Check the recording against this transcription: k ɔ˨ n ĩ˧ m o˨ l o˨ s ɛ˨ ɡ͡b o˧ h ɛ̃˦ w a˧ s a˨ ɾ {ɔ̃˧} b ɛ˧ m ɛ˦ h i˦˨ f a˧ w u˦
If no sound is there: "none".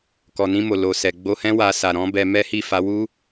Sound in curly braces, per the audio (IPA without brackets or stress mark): ɔ̃˨˦